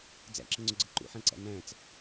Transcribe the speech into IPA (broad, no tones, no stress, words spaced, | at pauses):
d͡zæ̰ǁəŋ͡ǀʊɡ͡ǀə ǃṵħæ̃ǀæ̰ næ̃t͡s